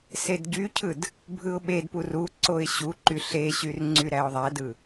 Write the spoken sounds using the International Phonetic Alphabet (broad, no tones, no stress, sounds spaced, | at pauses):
s e d ɟ y cʰ ɯ d | bʱ ɯ ʊ̯ ɓ e d p u r u ǀ o ɪ̯ ɕ u ǃ y ɬ e ɕ y r ŋ͡ǀ y ɾ æ ʊ̯ ðˤ æ d ɯ